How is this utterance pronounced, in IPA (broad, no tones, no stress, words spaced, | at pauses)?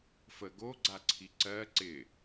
fə ɡo ɡ͡ǀaǀʰiǀɜ ǀɪ